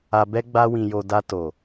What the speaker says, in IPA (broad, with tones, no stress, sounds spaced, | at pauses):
a˧ b ɛ˦ ɡ͡b a˦ w ĩ˧ j o˧ d a˧ t o˨